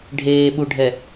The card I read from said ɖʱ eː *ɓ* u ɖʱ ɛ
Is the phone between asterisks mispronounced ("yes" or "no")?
no